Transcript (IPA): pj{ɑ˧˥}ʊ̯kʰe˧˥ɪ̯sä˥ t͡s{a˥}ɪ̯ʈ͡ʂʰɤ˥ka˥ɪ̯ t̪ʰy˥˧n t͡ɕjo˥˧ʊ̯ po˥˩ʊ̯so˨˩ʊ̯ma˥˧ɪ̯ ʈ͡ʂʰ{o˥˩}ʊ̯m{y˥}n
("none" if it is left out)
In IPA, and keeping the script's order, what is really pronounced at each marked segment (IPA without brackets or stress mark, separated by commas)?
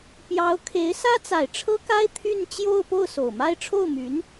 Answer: ɑ˧˥, a˨˩, o˥˩, y˧˥